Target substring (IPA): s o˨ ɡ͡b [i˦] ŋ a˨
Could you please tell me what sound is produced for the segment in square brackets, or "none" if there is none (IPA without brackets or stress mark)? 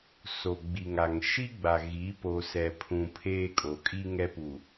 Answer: i˨